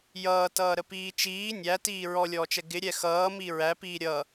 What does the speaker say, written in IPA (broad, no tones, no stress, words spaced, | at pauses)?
jʌːtʌːɾəpiː t͡ʃiː nʲætiː ɹɔlʲɔːt͡ʃɛ ɡɪɾʲɛ xʌːmi ɹæpiː ɾʲʌ